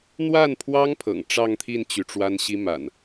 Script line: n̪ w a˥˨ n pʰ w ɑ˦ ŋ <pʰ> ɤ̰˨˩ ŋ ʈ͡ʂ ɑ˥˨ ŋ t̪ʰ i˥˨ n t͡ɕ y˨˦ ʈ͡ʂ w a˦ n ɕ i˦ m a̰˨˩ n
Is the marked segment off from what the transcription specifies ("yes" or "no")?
no